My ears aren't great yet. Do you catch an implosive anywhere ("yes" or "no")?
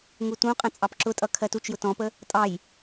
no